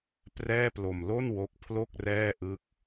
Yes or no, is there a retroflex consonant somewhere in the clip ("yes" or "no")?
no